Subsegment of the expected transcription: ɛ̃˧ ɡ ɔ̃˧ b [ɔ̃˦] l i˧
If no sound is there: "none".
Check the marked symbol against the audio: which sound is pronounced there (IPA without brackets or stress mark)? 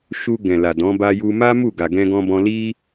ɔ̃˧